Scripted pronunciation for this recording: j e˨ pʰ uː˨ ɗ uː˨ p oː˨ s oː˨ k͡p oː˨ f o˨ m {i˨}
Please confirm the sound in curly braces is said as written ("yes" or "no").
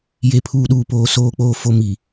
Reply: yes